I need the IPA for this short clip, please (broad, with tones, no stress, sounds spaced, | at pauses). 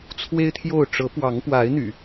t͡sʰ w e˦ ɪ̯ t̪ʰ j o˥˨ ʊ̯ ʈ͡ʂ ɤ˨˦ p w ɑ˨˦ ŋ p w a˨˦ ɪ̯ n̪ y̰˨˩